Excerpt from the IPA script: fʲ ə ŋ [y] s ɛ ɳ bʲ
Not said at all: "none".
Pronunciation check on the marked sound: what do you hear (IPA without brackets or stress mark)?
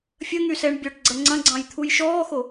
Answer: y